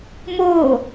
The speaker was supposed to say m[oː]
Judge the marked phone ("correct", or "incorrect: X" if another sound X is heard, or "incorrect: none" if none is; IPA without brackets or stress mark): correct